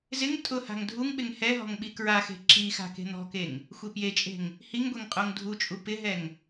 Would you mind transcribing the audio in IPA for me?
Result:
z ɪ ŋ tʼ ʊ h a̤ ŋ dʱ u ŋ ɓ ɪ ŋ h ɛ ɦ ɔ̤ ŋ ɓ i k ɹ a x e̤ ǁ i x a̤ k e̤ n̪ ɔ̤ k e ŋ | xʷ e p j e t͡ʃʼ e̤ ŋ | h i ŋ ɡʷ e ŋ qʼ o ŋ dʱ u t͡ʃʼ u p ɪ ɦ ɛ ŋ

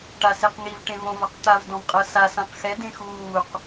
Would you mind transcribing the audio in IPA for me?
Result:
ʈ a s e q ŋ i v ʈ ẽ v õ v a q t̪ a v d ɔ̃ v qʼ ɤ s a s ã q x ɛ d ẽ x uː q

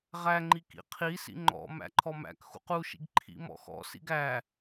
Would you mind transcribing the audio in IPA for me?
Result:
ʁ æ ŋ͡ǃ i k ḭ qʰ i s ḭ ŋ͡ǃ ɔ̰ m æ̰ ǃʰ ɔ m æ̰ k x ṵ q u ʃ ḭ ɡ ǃʰ ḭ m ɔ̰ x ɔ̰ s ḭ ɡ æ

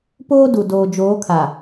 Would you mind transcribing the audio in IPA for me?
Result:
p oː˦ d u˨ d oː˨ d͡ʒ oː˨˦ kʰ a˨

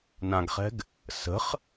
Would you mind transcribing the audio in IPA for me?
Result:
n ã ɡ χ ɛ̤ ɡ | s ə̤ χ

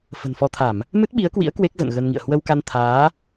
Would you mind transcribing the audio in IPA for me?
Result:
f ə̤˨˩ n f ɔ˧ t̪ʰ a˧˩˨ m | m ɨ˦˥ t̚ ɓ i˨˦ ə̯ k w ḭ˧˥ ə̯ k w e˦˥ k̚ z ə̰˧˨ n ɣ ə˧ n ŋ ḭ˧˨ ə̯ h w ə˧ w k a˧ n t̪ʰ aː˨˦

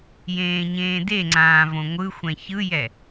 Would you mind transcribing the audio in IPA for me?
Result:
j ẽː ɲ ẽː d e ŋ͡ǀ ãː v õ ŋʷ ɯ xʷ ɛ̃ ç ɯ j ɛ

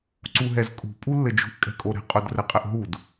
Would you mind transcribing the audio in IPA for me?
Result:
ǀ u ɦ ɛ z kʼ ṳ pʼ u lː ɘ d͡ʒ ṳ ʔ kʼ ɛ̤ kʼ o ɾ ɛ̤ qʼ o d r ɘ qʼ ɘ ʔ ɦ u d

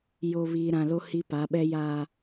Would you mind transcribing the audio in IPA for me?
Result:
j o˨ β iː˨ ɾ ã˨ l o˦ h i˦ p a˨˦ ɓ ɛ˦ j a˨

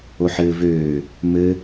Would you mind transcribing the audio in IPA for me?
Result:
o ħ ɘː v øː | m ɘ

